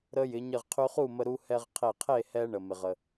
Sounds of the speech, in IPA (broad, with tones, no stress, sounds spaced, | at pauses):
ɾ ə˧ j ɪ˩˧ ɲ ɘ˧˩ ʁ qʰ y˧ χ u˥˨ m ə˧ ɾ u˧ h ɛ˧ ʁ qʰ e˧˩ qʰ e˥˨ h ɛ˧ ɳ ə˩ m ɪ˩ ʁ ə˩